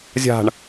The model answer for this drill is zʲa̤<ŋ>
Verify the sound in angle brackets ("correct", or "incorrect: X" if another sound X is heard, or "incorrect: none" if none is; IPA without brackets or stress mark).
incorrect: ɳ